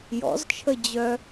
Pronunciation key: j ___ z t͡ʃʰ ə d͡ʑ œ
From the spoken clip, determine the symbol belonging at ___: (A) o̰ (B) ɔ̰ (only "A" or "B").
B